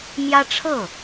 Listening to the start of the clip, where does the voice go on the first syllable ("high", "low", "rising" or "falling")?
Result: high